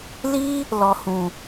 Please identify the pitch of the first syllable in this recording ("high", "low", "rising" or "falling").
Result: high